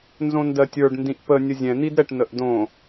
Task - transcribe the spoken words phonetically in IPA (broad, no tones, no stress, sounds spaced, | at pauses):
n z õ n d ɜ tʲ ə˞ ɖ n d ĩ ʔ p ə nʲ ə zʲ ɛ̃ n̪ i d ɾ ɛ ʈ n ə ʔ d õ